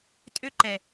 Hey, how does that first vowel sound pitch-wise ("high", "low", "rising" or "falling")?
high